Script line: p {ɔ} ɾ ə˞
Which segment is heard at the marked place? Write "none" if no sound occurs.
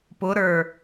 ʊ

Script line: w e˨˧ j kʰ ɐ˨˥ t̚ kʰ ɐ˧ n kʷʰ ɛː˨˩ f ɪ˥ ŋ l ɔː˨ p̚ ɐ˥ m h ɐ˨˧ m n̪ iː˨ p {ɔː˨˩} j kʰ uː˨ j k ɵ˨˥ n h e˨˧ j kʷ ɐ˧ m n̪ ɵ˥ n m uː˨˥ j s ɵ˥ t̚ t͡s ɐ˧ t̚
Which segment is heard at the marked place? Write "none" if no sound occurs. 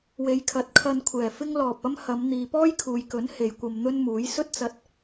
ɔː˥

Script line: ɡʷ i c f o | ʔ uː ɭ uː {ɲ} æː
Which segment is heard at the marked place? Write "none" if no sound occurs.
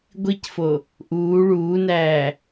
n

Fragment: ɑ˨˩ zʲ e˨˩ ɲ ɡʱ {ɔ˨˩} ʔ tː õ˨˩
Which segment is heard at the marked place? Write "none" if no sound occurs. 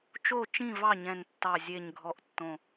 ɔ˨˩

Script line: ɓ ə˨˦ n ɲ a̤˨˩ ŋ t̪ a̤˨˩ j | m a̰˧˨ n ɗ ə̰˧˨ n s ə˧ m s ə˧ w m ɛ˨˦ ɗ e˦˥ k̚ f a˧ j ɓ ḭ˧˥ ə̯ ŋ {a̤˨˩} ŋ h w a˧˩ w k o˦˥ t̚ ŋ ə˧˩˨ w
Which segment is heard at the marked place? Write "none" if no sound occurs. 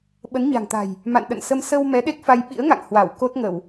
a̰˧˨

